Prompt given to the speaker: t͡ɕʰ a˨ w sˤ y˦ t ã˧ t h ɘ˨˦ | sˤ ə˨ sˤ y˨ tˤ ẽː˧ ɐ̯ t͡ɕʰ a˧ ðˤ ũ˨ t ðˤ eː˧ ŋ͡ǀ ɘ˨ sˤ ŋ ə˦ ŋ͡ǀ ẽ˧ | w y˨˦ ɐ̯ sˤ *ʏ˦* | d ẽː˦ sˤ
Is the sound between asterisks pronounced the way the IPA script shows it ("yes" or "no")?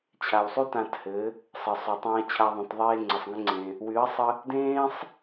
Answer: no